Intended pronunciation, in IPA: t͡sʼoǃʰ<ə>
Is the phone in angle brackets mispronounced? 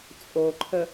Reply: no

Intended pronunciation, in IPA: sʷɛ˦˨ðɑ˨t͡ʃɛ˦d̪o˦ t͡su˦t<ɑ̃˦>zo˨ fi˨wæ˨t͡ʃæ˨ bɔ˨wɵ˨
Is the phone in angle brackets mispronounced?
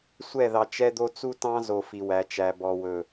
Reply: no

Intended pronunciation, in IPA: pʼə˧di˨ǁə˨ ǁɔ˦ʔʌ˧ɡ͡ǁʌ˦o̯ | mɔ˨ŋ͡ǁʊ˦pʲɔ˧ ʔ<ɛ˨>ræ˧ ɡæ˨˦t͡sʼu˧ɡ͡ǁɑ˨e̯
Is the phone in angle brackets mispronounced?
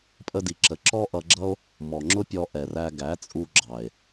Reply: no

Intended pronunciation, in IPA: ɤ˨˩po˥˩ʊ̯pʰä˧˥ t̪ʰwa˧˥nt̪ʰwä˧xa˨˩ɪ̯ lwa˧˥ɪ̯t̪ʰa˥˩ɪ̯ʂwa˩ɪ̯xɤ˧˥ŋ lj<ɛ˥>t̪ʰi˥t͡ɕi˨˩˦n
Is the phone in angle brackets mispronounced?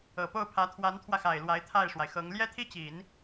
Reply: no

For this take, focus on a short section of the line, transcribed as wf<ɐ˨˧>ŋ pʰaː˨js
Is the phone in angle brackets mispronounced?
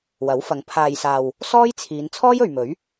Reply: no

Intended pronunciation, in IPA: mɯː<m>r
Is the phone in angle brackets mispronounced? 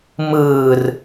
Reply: yes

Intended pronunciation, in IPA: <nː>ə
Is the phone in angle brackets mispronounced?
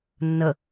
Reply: no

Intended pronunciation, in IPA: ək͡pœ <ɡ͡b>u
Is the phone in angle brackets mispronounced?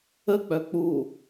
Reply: yes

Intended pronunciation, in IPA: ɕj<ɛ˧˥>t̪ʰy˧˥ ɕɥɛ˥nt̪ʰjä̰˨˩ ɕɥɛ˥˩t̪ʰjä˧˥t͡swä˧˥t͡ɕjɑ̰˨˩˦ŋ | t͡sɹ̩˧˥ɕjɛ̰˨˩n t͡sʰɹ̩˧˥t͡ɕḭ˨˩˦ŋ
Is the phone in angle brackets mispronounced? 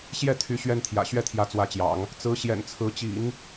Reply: yes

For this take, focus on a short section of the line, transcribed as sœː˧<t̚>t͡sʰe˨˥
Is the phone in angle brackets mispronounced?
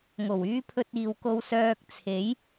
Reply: yes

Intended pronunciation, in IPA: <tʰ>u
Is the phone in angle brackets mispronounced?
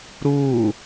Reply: yes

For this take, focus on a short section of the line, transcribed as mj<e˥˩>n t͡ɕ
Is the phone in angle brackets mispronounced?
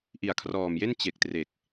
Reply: no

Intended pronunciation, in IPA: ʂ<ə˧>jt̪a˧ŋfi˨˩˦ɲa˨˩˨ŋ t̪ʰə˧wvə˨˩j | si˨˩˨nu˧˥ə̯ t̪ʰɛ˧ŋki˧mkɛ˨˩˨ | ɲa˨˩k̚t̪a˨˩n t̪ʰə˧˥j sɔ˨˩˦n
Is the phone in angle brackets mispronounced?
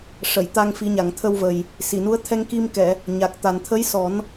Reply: yes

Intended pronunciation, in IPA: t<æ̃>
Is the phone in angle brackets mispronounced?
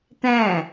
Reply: no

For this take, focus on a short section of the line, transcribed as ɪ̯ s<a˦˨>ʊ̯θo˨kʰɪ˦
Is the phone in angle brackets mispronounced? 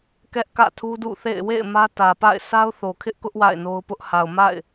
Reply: yes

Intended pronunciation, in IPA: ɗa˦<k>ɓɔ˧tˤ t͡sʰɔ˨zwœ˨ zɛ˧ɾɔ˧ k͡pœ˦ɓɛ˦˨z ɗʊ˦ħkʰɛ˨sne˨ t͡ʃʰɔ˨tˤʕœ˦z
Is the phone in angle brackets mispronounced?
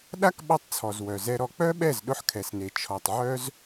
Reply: no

